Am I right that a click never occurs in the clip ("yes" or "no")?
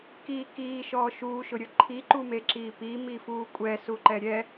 no